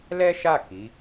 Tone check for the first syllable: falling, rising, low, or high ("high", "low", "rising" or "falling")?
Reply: high